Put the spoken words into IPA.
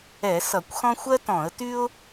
ɛ˧˩˧ s ʌ˧˩˧ kʷ x ɔ̃˥ xʷ ɜ˥ t ɔ̃˧˩˧ ə̯ t y˥ ʊ̯

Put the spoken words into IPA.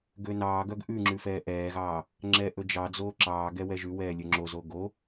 ɡ ø n ɑː ɡ œ ɡ ʔ ʉ ŋ͡ǁ ʉ f ɛː ʔ ɛː ɣ ɑː | ŋ͡ǁ ɛː ʔ ɵ d͡ʒ ɑ d͡z oː ǁ ɑː ɡ ɛ w ɛ ʒ ʉ w ɛː lʲ ɵ ŋ͡ǁ o z o ɡ o

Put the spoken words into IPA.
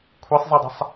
kʷʰ i sˤ zˤ i dˤ ə̤ sˤ

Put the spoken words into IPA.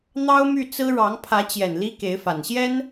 n̪ ɑ˥ ʊ̯ m y˥˩ t͡s ɹ̩˥ ɻ ɑ˧˥ ŋ pʰ ä˧˥ t͡ɕ j ɛ˨˩ n l i˥ k e˧˥ ɪ̯ f a˨˩ n ɕ j ɛ˥ n

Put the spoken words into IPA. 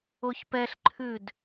o ç p ɛ ɬ ǃʰ ʉ d

